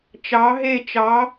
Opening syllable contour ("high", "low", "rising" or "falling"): rising